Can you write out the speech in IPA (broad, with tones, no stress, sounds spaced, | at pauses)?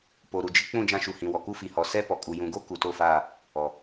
p o˨ ɾ u˨ d͡ʒ ɪ˦ k͡p ũ˦˨ d͡ʒ ã˦ ʃ u˨ h ĩ˨ w ɔ˨ k u˦ f i˨ h ɔ˨ s ɛ˦ p ɔ˨ kʼ u˨ j ũ˨ ɡ o˦ k u˨ t o˦˨ f aː˦˨ | ɔ˨